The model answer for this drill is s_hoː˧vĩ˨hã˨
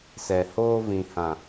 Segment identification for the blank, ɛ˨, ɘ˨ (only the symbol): ɛ˨